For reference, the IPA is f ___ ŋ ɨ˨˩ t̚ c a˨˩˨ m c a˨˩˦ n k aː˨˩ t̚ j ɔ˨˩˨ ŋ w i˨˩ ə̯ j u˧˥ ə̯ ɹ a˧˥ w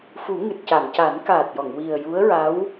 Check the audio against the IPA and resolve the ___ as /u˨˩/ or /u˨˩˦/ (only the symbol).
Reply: u˨˩˦